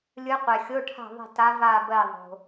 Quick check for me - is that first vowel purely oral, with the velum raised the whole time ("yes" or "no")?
yes